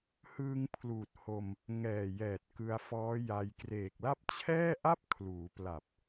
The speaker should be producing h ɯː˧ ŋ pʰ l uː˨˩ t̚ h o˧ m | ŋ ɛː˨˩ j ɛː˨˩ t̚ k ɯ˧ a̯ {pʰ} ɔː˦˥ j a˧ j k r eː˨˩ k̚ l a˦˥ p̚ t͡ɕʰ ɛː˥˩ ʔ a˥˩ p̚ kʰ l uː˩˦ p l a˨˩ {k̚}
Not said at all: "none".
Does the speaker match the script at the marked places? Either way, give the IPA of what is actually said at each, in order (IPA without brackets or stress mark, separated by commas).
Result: f, p̚